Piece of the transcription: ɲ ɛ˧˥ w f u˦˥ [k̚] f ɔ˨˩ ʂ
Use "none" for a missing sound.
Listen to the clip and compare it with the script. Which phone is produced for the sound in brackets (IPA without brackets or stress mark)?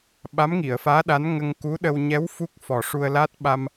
k̚